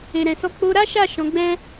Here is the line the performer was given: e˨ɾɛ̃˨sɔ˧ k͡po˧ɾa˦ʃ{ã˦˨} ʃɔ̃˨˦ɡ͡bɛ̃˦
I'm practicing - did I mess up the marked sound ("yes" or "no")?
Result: yes